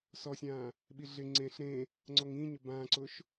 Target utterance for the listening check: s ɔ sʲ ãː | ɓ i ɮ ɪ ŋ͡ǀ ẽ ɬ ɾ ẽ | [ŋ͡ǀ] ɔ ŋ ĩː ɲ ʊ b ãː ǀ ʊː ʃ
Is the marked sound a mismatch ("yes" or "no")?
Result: no